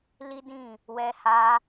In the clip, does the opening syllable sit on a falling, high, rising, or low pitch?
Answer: high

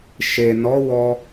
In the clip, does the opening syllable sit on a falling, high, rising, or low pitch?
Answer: low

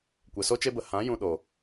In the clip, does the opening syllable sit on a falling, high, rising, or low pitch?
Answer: low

